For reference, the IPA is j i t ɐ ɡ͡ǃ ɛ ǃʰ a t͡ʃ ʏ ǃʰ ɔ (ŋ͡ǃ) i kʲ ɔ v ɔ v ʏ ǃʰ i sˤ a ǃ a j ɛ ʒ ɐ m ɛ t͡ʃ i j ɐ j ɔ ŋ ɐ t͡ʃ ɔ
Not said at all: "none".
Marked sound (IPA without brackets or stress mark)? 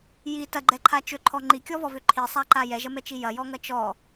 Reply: ŋ͡ǃ